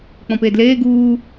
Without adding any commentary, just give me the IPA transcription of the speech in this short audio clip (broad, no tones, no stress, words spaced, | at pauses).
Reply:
k͡pɔ̃peːdleː ɡuː